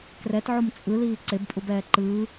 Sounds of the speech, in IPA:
k r ɛ t ʕ o m t͡sʼ ɯ l iː ǀ e b pʼ u b ɛː ǃ ɯː

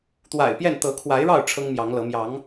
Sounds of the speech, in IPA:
t̪ w a̰˨˩ ɪ̯ p j ɛ˥˨ n t̪ ɤ˨˦ kʰ w a˨˦ ɪ̯ ɻ ɑ˥˨ ʊ̯ ʈ͡ʂʰ ɤ˦ ŋ m j ɑ˨˦ ŋ l ɤ˨˦ m j ɑ˨˦ ŋ

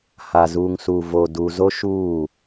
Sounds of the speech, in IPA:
h a˨ z uː˨ ŋ s u˨ v oː˨ d u˨ z o˦ ʃ uː˦˨

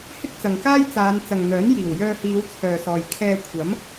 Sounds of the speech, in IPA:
h ɪ˥ k̚ t͡s ɐ˨ ŋ k aː˥ j t͡s aː˨˧ n t͡s ɐ˨ ŋ n̪ œː˨˥ n j iː˨˩ w j œː˧ h iː˨˧ w t͡sʰ œː˨ s ɔː˨ j kʰ ɛː˧ kʷʰ ɐ˨˥ m

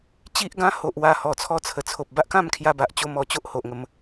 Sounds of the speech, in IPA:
t͡ɕ i˦ ʔ ɡ ã˦ h o˨ ʔ w a˧ h ɔ˨˩ t͡sʰ ɔ˧ t͡sʰ ə˨˩ t͡sʰ o˨ p̚ b a˦ ʔ k ã˥˧ m kʰ j a˧ b a˨ ʔ t͡ɕ o˧ m ɔ˧ t͡ɕ o˦ ʔ h o˨ ʔ ŋ ə˨˦ m

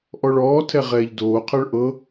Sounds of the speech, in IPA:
ʔ ɔ ɭ ɔː tʰ ɛ ʁ ɛː ʎ d oː qʰ ɤ ɭ ʔ ɤ

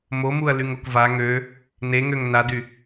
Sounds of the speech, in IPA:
m o m u ɐ̯ l y ŋ o k v a ŋ ø | n e ŋ ø ŋ n a d y

